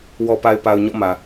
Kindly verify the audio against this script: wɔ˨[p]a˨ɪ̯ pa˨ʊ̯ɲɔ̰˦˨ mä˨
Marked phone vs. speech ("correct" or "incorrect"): correct